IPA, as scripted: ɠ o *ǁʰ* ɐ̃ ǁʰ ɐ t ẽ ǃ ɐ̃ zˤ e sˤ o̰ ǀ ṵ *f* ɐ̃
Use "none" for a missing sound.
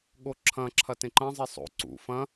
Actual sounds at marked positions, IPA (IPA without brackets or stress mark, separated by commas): ǁʰ, f